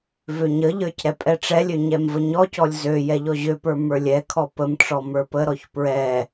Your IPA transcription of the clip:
v ø ɲ ə ʎ ə˞ c ɾ ɛ pʼ ɛ ʈ͡ʂ ɛ lʲ ø ɲ ɛ m v ə ɲ ɔ c ɔ lʲ z ø j ɛ ʎ ɔ ʑ ø p ə˞ m ə˞ lʲ ɛ kʰ ɔ p ə m ʈ͡ʂ ɔ m ə˞ p ə ɾ ɔ ç p ɹ ɛ

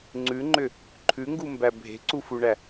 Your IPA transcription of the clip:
ŋ͡ǀ ʉ ŋ͡ǃ ʏ | ǃʰ ʉ ŋ ɡ u m b æ bʱ e̤ ǀ u f u ɳ æ

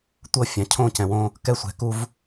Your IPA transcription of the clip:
tʷ ɤ˦ fʲ ã˨ cʰ õ˦˨ c ɛ̃˨ w õ˦ | k ɛ˦˨ sʷ ɛ̤˨ k u˦ v

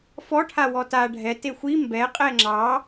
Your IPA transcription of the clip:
f ɔ ʈʰ a w ɔ t a ɖʱ ɛ t e xʷ i m b ɛ qʼ ɛ ŋ͡ǁ ɑ

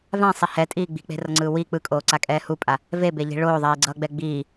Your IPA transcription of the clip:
v ã sˤ i h ɛ tʼ iː ɡ͡b i̤ k͡p e̤ r ʌ ŋ͡ǀ ɯː w i k͡p ɯ kʼ oː ǀ a kʼ ɛː h u pʼ a | v e b e ʎ i̤ ɭ oː ðˤ iː ɡ͡ǀ ʌː ɡ͡b ɛ ɡ͡b iː

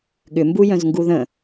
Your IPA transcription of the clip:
ɠ ʏ m b u j œ̃ z ŋ ɡ u ð ə̃

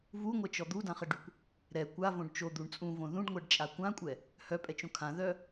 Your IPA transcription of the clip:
v u ŋʷ ɛ t͡ʃ ɔ d̪ u d ã χ ə ɖ y kʷ | ɾ ɛ kʷ a v õ ɖ t͡ʃ o d̪ u ɳ t͡sʼ ũ v õ ð ũ ɖ ŋʷ ɛ ɖ t͡ʃʼ a kʷ ã kʷʼ ɛ | h œ pʼ ɛ t͡ʃ õ kʰ ã ð œ

